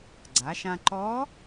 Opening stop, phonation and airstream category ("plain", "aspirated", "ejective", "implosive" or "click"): click